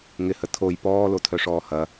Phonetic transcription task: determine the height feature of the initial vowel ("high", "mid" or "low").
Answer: high